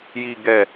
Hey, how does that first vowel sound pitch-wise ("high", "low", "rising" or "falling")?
low